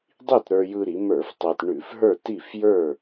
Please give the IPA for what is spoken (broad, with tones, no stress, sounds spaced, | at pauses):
dˤ i˥˨ t ɾ ə˞˧ j ɯ˧ ɾ i˩˧ m ə˞˧˩˧ f tˤ ɛ˧ t ɳ ʉ˧˩˧ f ɦ ə˞˥˨ t i˥˨ f j ə˞˥˨